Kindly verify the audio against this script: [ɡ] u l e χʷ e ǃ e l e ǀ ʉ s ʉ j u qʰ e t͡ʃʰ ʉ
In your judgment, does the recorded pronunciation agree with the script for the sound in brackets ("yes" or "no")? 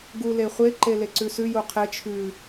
yes